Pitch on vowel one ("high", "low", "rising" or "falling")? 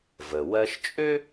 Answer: low